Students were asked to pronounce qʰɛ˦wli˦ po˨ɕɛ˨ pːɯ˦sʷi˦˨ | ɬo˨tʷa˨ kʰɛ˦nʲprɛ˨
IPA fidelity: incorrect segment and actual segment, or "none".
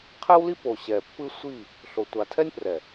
kʰ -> tʰ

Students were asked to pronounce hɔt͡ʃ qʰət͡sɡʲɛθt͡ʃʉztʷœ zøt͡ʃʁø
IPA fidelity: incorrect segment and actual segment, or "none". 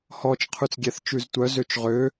ə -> ʉ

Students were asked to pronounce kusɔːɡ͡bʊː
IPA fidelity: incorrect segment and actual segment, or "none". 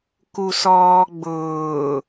none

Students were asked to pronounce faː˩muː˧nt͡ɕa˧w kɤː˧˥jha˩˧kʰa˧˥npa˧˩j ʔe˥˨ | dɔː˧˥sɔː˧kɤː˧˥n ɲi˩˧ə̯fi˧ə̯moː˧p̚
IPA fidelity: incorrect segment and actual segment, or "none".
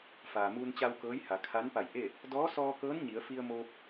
none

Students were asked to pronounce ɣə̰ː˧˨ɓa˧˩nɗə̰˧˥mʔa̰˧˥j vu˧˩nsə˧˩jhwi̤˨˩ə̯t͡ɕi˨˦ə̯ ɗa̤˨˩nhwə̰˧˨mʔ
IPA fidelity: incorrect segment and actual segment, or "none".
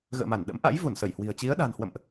ɓ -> m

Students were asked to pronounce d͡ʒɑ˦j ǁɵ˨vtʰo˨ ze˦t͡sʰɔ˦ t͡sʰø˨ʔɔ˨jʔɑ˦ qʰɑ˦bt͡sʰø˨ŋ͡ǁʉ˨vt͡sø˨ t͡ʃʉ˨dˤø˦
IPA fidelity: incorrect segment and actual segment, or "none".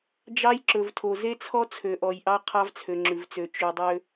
b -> v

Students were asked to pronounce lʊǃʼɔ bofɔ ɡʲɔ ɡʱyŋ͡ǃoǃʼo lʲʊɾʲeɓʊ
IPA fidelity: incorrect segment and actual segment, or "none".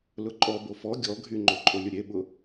none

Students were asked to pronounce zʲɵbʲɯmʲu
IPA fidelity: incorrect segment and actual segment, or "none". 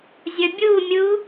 ɯ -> u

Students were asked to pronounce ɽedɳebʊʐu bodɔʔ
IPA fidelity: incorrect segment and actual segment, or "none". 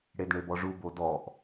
ʊ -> ɔ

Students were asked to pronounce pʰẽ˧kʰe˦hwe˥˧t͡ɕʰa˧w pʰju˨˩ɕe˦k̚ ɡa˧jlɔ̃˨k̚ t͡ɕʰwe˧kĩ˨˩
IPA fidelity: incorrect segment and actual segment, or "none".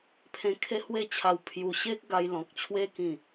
none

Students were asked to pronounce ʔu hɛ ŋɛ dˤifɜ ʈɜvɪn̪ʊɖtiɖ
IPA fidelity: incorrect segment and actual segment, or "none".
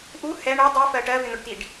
ŋ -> ɳ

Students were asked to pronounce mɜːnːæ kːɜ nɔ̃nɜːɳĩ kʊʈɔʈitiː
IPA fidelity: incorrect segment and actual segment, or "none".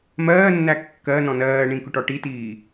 none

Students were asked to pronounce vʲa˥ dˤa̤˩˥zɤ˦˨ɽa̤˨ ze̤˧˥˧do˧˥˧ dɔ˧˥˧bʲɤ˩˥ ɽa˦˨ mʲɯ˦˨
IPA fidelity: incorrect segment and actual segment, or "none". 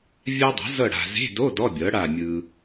ɯ˦˨ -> ɯ˨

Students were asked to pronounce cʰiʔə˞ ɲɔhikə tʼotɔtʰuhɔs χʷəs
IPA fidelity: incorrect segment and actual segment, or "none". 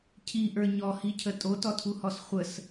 k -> cʰ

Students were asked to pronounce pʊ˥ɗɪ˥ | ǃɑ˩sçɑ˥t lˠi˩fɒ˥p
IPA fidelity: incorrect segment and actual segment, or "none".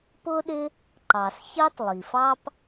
ɒ˥ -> ɑ˥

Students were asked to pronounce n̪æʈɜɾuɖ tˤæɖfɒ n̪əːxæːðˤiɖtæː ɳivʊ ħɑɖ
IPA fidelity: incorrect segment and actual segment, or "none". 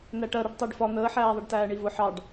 x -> ħ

